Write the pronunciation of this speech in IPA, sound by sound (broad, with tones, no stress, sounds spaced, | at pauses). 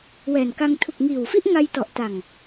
w ɛː˨˩ n k a˧ ŋ tʰ u˨˩ k̚ ŋ iː˨˩ w f i˥˩ ʔ ŋ a˧ j t ɔ˨˩ ʔ t a˨˩ ŋ